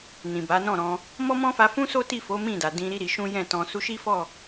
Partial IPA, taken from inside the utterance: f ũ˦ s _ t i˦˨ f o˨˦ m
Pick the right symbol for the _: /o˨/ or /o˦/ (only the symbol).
o˦